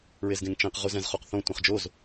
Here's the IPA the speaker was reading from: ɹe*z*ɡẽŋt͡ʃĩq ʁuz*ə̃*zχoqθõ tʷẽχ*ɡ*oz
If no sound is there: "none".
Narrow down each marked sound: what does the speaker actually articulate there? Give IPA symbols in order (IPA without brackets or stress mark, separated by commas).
z, ɛ̃, d͡ʒ